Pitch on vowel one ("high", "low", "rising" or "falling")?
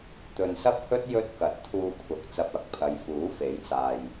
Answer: low